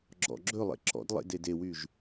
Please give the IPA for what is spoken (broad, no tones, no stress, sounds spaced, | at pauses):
ɡ͡ǁ ɔ̰ ɡ͡ǁ ɵ lˠ ḛ ǁ ɔ̰ d lˠ ḛ d e d e w y ʒ